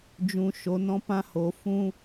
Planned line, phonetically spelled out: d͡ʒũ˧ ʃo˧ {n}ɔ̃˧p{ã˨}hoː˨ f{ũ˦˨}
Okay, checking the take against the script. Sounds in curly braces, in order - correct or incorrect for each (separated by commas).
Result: correct, incorrect, incorrect